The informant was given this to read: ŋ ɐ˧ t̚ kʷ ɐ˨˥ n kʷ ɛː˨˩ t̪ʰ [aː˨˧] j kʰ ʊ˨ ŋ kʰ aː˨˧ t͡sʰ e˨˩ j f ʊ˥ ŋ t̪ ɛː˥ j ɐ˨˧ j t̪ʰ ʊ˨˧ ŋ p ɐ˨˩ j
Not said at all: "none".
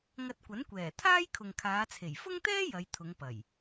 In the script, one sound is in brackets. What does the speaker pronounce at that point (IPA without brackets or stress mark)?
aː˥